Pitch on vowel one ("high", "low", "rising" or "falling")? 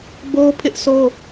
high